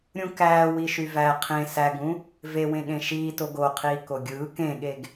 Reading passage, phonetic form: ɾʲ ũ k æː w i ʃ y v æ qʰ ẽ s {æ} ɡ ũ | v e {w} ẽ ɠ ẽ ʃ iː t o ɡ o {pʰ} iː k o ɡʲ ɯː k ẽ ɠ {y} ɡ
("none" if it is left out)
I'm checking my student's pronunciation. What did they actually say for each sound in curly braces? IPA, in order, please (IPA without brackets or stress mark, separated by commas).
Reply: æ, w, qʰ, e